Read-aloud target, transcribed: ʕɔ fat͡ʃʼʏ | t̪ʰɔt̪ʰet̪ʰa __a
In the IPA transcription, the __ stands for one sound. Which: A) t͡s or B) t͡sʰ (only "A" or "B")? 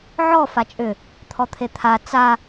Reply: A